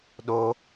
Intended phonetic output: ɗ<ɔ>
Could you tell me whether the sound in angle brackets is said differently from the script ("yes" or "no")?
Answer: yes